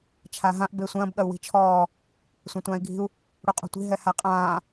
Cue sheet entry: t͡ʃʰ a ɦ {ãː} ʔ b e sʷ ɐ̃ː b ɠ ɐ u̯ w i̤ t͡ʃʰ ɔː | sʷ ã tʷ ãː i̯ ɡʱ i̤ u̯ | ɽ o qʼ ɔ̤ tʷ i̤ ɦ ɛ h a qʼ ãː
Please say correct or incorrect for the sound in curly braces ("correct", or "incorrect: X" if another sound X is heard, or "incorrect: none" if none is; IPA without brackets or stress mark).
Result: incorrect: ã